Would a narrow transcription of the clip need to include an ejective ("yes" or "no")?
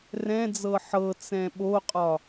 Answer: yes